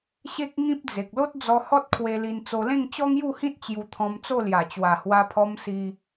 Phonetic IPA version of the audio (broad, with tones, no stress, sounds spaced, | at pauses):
ɕ e˦ k̚ ŋ ĩ˦ p̚ d͡z e˨ k̚ l o˦ t̚ d͡z ɔ˧ h ɔ˦ t̚ kʰ w e˧ l i˧ n t͡s o˧ l ẽ˥˧ ŋ t͡ɕ ɔ˦ ŋ j u˥˧ h ĩ˦ t̚ t͡ɕ j u˧ t̪ʰ ɔ̃˧ m t͡s o˥˧ l j a˨˩ t͡ɕ w a˨˩ h w a˧ pʰ ɔ˧ m s i˧